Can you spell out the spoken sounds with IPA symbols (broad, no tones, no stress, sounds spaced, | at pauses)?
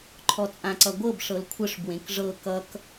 ǃʰ ɔ t͡sʼ ã ǀ ʌ ɡʷ ɤ b ʂ ɤ l kʷʰ ə ʂ b w ẽ k ʐ ɤ k ʌ k